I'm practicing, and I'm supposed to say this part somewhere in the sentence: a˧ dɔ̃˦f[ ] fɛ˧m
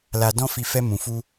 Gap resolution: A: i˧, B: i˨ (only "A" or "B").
A